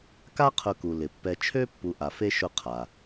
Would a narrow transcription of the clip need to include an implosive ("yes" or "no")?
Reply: no